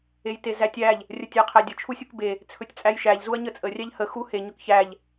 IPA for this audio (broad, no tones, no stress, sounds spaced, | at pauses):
e j t e z æ tʲ æ ʎ | rʲ ə tʲ æ qʰ æ dʲ ə t͡ʃʰ u sʲ u k b e | t͡sʰ ɵ tʲ t͡sʼ æ j ʃ æ ʎ z u ɐ̯ ɲ ə t͡sʼ ə rʲ æ ʎ h ə x u h e ɲ ɵ k ç æ ʎ